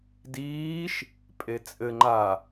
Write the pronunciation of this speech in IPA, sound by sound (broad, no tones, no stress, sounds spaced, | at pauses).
d iː ʃ | pʼ e t͡sʼ ɘ ŋ͡ǃ a